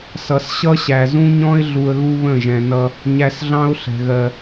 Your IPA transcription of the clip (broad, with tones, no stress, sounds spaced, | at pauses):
s ʌ˨ s ɕ ʌ˦ ɕ æ˨ z ũ˦ ɲ ɔ̃˦ ɪ̯ ɮ u˧ ə̯ ɣ u˦ β ə̃˦˨ ʒ ɛ̃˨ n ʌ˧ | ɲ æ˧ s ɮ ɑ̃˦ ʊ̯ ɬ ɛ̤˨ ɣ ɜ˨